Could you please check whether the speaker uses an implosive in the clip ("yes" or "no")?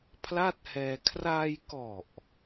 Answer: no